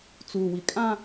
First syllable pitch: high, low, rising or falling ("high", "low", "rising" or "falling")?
low